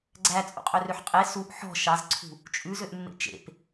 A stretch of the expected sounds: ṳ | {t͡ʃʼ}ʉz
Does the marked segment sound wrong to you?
no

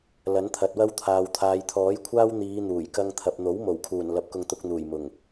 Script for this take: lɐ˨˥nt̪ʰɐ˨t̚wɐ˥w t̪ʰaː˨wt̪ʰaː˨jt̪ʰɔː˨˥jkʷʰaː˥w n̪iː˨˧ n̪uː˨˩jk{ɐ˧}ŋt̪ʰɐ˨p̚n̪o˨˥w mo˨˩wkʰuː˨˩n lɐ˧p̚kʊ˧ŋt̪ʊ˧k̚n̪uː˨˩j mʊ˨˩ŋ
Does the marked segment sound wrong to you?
no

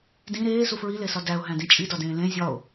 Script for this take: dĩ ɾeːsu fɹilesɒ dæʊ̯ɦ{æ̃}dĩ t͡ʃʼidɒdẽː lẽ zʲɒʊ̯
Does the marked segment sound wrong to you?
no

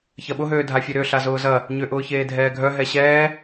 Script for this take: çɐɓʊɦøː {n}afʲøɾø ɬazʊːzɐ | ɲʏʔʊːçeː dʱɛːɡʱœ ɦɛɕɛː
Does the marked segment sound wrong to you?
yes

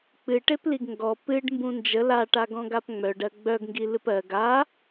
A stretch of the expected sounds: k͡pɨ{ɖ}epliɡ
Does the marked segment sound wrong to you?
yes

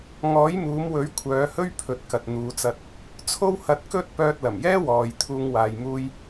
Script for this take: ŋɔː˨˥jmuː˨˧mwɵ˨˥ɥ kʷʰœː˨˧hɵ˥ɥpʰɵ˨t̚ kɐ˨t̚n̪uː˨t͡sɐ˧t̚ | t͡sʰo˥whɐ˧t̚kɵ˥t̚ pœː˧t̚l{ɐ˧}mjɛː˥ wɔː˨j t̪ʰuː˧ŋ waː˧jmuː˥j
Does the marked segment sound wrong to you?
yes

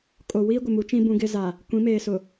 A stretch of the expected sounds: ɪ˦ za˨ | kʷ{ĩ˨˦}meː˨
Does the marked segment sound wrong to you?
no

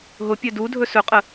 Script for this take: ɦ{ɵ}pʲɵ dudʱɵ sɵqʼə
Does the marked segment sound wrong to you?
yes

